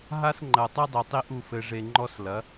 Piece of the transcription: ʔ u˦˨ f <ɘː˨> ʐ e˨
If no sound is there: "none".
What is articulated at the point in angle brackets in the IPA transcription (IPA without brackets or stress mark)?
ɘ˨